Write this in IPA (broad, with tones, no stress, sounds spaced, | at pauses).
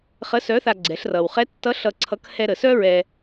χ ə˧˥ s œ˧˥ θ a˧ ɡ͡ǀ ɛ˩˧ ɬ r ʌ˩ w χ ɛ˧˥ tː ʌ˧˥ ɬ ʌ˧ ǀʰ ʌ˧˥ k h ɛ˧ ɾ ə˩ s œ˥ ɹ ɛ˧